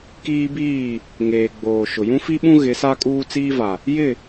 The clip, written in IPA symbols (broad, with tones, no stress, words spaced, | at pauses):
kiː˦biː˦˨ | ŋeː˨ɡ͡boː˨ʃʊ˨ jũ˦fi˦ɓũ˦ ɣɪ˨˦sa˦ kʼuː˦t͡siː˦va˨ | jɪ˦˨